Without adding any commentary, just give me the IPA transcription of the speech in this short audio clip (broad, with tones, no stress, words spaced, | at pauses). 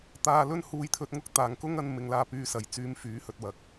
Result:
t̪aː˧lɵ˥n huː˧jt̪ʰɵ˧t̚ŋʊ˥k̚ t̪aː˨ŋkʊ˥ŋɐ˧n mɪ˨˧ŋlaː˧ pyː˧sɐ˨jt͡syː˧m fyː˨˥hɵ˨t̚wɐ˨˥k̚